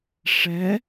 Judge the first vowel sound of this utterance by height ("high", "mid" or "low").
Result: mid